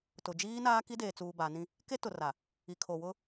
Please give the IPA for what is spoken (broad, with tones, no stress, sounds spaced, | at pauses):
t ʊ˨ d͡ʒ iː˦ n aː˦ k i˦ d eː˨ t͡s uː˨ b a˨˦ n ĩ˦ | k e˦ t ʊ˨ r a˨ | i˨ kʰ o˨ w ʊ˦